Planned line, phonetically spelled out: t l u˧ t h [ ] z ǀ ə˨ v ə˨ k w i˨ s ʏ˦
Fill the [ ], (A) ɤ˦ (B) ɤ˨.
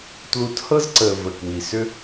A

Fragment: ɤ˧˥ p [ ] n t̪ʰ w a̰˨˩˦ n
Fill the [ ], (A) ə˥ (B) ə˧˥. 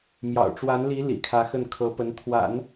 B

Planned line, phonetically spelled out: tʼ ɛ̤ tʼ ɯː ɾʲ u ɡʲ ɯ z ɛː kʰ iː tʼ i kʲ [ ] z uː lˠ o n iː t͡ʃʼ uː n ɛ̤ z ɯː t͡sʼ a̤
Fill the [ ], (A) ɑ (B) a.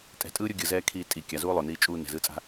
B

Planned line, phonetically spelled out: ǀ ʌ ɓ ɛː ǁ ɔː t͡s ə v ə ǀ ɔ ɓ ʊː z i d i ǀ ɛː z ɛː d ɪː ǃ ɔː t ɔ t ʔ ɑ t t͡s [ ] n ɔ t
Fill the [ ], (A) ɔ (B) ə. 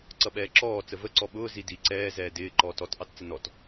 B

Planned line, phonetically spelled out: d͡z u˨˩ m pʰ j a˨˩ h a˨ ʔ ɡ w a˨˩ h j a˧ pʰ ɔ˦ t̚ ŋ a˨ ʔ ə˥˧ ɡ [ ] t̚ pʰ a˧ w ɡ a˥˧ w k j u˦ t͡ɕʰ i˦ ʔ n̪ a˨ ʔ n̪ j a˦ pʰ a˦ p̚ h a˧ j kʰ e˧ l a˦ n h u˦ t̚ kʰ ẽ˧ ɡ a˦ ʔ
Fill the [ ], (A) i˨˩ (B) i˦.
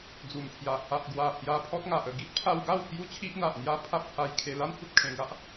B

